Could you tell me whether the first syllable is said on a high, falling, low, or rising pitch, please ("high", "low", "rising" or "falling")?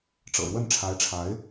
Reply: low